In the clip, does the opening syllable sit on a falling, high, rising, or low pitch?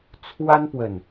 high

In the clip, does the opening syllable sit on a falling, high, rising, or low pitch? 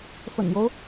low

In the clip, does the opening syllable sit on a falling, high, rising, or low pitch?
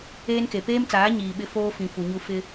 high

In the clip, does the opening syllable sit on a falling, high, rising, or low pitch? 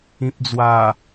low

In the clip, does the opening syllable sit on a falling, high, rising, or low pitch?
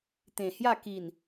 low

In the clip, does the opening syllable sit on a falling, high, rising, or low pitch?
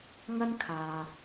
high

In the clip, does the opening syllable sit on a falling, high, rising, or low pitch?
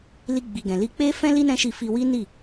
high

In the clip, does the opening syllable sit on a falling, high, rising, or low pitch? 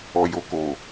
low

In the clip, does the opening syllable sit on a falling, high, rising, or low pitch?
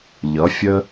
rising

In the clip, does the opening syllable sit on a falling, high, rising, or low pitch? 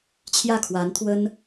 falling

